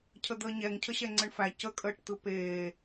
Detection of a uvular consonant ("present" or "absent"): absent